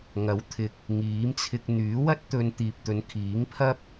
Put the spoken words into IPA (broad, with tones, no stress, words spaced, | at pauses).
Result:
ŋɐ˨˥wt̪ʰɪ˨k̚ | ŋiː˨˥mt͡sʰɪ˧k̚ n̪yː˨˥wɐ˥t̚t̪ɵ˧n t̪iː˨p̚t̪ɵ˨˧nkʰiː˨˥ŋpʰɐ˥p̚